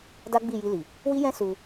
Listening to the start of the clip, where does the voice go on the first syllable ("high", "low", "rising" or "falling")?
high